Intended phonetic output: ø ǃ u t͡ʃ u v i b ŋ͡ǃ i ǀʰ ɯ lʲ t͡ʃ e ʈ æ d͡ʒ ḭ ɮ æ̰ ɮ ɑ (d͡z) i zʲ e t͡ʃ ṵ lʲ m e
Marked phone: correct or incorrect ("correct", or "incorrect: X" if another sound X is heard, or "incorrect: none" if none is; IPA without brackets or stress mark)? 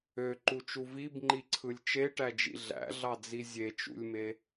correct